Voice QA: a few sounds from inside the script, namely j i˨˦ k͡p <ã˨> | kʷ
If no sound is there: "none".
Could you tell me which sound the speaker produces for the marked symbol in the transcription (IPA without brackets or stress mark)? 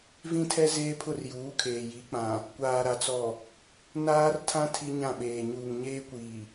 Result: ã˨